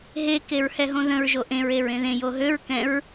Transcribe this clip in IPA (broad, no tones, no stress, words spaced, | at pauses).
ɦe keɹhɛɦõðə̃ɹ ʒoʔẽɹ eɹẽðẽ joɦøɹ kɛ̃ɹ